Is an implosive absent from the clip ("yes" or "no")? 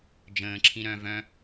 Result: yes